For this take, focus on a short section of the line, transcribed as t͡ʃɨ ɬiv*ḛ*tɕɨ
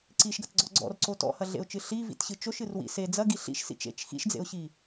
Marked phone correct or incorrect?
incorrect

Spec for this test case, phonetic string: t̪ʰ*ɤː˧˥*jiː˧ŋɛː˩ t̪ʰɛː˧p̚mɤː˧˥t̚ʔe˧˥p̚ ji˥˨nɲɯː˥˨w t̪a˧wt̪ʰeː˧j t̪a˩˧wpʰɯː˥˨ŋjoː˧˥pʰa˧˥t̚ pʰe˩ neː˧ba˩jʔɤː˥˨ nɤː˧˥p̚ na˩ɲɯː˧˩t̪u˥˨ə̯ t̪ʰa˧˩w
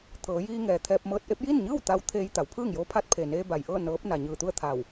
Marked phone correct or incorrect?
incorrect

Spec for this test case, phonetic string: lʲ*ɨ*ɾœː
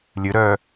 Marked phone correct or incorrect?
correct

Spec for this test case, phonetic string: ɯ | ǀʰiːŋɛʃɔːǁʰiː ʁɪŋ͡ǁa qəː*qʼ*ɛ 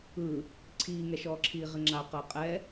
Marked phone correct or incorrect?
correct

